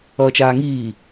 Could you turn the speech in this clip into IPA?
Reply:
ʌːt͡ʃaːŋiː

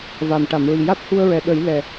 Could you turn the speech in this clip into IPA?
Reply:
va˨˩m ʈa˨˩˨mɹi˨˩ ja˦˥t̚hu˧ə̯ɹɛ˨˩ ɗə˨˩˦j lɛ˨˩

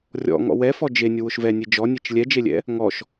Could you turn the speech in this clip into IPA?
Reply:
rʲɔ̰ ŋɔ̰wɛfɔ d͡ʒe nʲʊwʊʃvɛnʲe d͡ʒɔnʲet͡ʃ lʲɛd͡ʒelʲɛ̰ | ŋɔʃ

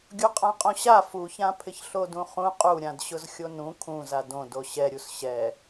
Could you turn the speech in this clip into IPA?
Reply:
ɡʲuqʼãqʼõɕa fuçãpʰɪç ɬodũχũ qʼuɾʲãdɕʊz xʲonũ kʰũza dõ doɕɛɾʲus ɕɛ

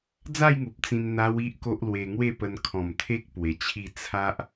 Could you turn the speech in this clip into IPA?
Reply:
d͡za˥˧jŋu˨p̚ t͡sĩ˧n n̪a˦wi˦ʔko˦ʔ lwe˧ŋwe˥˧pə˧n kʰɔ̃˨˩mt̪ʰe˦k̚ pwe˧t͡ɕʰi˥˧ t͡sʰa˦ʔ

